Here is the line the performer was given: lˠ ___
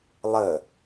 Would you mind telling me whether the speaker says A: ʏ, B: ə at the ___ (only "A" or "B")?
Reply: B